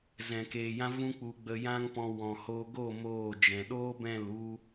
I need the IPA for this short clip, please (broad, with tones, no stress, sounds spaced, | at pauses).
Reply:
z ɛ̃˨ k eː˨ j ã˦ v ũ˦ k͡p u˧ ɡ͡b ə˧ j ã˦ ŋ p ɔ̃˧ w ɔ̃˨ h oː˧ ɡ oː˦˨ m oː˦˨ d͡ʒ ɛ̃˨ ɗ oː˦ b ɛ̃˦˨ l u˦